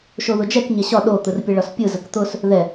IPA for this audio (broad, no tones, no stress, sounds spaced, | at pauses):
ʃ o ð ʊ d͡ʒ ɛ k ɲ ɛ ɕ ɒ ɗ o t̪ ɯ r pʲ ə ɭ ɒ s pʲ ɯ z ə k t̪ ʊ s | ð ɛ